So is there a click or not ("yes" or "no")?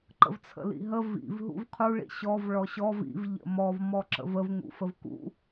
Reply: yes